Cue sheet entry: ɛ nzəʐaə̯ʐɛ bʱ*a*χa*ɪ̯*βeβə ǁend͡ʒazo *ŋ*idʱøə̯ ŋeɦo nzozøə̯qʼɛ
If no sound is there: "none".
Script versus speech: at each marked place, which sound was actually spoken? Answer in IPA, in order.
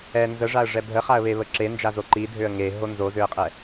ə, ə̯, ǃ

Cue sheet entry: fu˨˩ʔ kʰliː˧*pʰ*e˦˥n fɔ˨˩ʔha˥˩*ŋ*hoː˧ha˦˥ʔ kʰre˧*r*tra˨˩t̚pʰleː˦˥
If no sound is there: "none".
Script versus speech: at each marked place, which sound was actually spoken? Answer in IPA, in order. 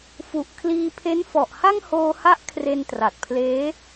pʰ, ŋ, n

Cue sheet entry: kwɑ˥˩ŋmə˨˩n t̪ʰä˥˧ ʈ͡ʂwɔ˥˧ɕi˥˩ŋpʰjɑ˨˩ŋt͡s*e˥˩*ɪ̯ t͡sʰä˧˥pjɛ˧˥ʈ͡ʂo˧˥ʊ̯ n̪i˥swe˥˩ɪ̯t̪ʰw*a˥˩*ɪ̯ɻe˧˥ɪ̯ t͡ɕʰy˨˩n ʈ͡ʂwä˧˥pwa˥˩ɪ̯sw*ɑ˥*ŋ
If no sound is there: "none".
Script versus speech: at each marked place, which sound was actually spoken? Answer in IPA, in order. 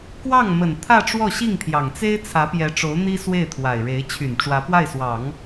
e˥, a˨˩, ɑ˨˩˦

